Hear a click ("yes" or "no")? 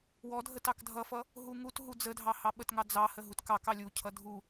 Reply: no